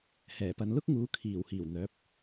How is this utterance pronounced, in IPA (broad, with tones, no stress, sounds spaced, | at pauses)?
h ɛː˨˩ p ɐ˨ n l ʊ˥ k̚ ŋ uː˨˧ kʰ iː˨˩ w h iː˨˩ w n̪ œː˨˥ p̚